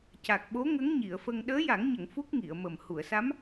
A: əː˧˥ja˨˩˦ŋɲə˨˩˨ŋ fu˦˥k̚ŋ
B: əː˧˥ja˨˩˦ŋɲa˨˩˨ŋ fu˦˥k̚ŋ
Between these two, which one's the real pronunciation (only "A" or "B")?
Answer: A